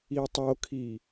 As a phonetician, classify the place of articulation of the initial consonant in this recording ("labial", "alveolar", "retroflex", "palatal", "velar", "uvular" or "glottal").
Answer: alveolar